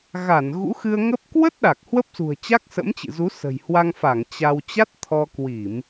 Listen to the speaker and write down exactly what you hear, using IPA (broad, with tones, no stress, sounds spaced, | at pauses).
ɣ a˧˩ n ɣ ṵ˧˥ x ɨ˧ ə̯ ŋ ə˦˥ p̚ k w ə˦˥ t̚ ɗ a˨˩ k̚ h w ə˦˥ p̚ s ṳ˨˩ ə̯ t͡ɕ a˦˥ k̚ s ə̰˧˥ m t͡ɕ ɨ̰˧˨ z u˨˦ s ə̤˨˩ j h w a˧ ŋ f a˧˩ ŋ t͡ɕ a˧ w t͡ɕ a˦˥ t̚ t̪ʰ ɔ˧ k w i˧˩˨ m